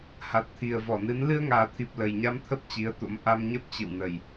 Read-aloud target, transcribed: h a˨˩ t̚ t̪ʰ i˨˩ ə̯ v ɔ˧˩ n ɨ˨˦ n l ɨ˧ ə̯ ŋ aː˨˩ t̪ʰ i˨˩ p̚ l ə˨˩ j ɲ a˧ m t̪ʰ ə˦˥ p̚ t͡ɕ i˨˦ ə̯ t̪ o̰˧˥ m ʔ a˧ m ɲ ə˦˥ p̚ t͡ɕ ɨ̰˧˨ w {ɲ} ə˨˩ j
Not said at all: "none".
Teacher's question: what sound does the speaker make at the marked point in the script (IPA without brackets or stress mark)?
n